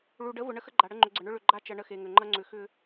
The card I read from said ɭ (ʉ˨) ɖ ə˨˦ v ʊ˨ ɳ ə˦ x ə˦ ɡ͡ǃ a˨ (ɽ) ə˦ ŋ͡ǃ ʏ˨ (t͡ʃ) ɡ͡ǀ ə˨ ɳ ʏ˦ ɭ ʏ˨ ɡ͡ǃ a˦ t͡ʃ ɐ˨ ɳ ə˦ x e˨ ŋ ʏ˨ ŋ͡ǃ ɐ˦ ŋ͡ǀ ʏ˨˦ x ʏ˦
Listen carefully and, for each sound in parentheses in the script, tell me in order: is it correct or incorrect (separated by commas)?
incorrect, correct, incorrect